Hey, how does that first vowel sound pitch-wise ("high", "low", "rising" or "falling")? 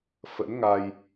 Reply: rising